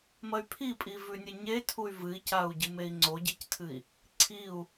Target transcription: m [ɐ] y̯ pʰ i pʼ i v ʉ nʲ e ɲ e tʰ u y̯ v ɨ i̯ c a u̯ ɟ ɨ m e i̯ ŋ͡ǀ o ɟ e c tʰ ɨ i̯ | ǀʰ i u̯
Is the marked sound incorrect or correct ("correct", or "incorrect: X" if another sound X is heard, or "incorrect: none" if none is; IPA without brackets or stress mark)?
correct